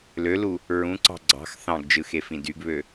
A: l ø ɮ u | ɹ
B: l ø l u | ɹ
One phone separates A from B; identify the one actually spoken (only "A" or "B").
B